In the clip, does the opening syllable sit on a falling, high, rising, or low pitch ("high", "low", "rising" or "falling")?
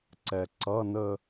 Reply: low